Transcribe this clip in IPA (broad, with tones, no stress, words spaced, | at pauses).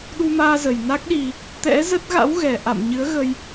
ɗu˧maː˧zə˨˩j na˦˥k̚ɗi˧ | t̪ɛ̰˧˥zə˦˥t̚ ɣa̰˧˥wɣɛ˨˩ ʔa̰˧˨m ɲɨ˨˦ə̯ɣə˧j